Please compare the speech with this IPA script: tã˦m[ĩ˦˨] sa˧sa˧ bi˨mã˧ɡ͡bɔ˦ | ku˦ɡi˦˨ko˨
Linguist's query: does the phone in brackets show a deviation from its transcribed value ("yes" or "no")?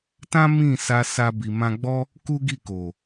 no